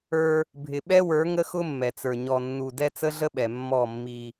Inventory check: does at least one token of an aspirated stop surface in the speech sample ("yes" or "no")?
no